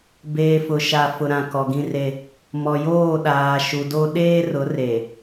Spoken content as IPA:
b eː˨ f ʊ˨ ʃ a˨ f ʊ˨ ɾ ã˨ k ɔ˨ ɡ ĩ˦ r e˦ | m ɔ˨ j oː˦˨ ɗ aː˨ ʃ u˨ d o˦ ɗ eː˦ r ʊ˨˦ r e˨

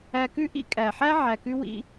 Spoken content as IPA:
æ˧ k ʉ˥ ʔ ḭ˥ kʼ æ˩ ħ æ˥ ʕ æ˩ k ʉ˧ w ḭ˧

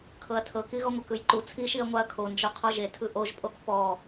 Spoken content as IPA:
kʰ ɤ ɐ̯ tʰ ɤ k i ɣ ɔ ŋʷ ɤ k ɯ j ǃ u t͡sʰ i ʃ i ɐ̯ ŋʷ a ɐ̯ kʰ o n d͡ʒ ɔ qʰ ɔ ʒ e tʰ ɯ ʔ o ʒ pʼ o k p ɔ

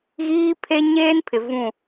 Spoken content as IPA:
ɣ iː˦ pʰ e˦ ɲ eː˦ n pʰ ɪ˨ v ũ˦˨

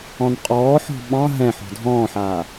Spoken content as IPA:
ɔ̃ n qʼ ɔː ħ ɔ̤ ɓ ɑ̃ ɦ ɛ̃ ħ ɔ̤ dʱ ɔ̃ː ħ aː

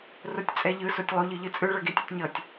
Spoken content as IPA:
r o tʲ t͡sʼ ɛ ʎ ɯ s o tʲ lˠ u ʎ ɯ ʎ ɯ t͡sʼ ɯ ɭ ʌ ɡ e tʲ u tʲ ɲ ʌ tʲ

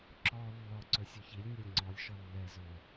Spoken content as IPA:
ǁ ɔ lː ɔ ǀ ɵ sʲ o ç i lʲ nʲ ɛ lʲ ŋ͡ǀ ɔ lʲ ʃ ɔ lː ɛ z ɵː

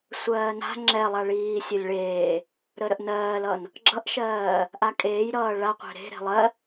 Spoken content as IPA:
sʷ ɜː n a̤ ŋ͡ǁ ɛ lˠ a ɭ iː sʲ ə lʲ ɭ eː | ɾ ə ɾ ə ʔ n ɜː l ʌ n | ɡ͡ǁ ʌ ʔ ʃ ɜː | ʔ a kʼ eː j ɾ ʌː ɭ a qʷ ɛ̤ ɾ e̤ ɾ e̤ lˠ ɜ

